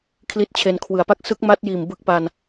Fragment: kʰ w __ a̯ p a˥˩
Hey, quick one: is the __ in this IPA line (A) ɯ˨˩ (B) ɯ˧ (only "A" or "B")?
A